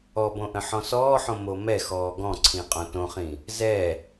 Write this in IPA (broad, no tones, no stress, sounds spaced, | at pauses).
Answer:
ɔ b õ ʔ ə̃ ħ ɔ̃ s ɔː ħ õ m o m ɛ x ɔː ɡ ɔ̃ ǀʰ ĩ qʼ õ t õ χ ĩ | z ɛ